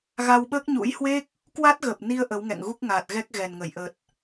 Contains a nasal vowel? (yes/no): no